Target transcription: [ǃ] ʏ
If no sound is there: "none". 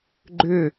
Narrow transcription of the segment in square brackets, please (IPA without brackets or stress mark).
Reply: ɡ͡ǃ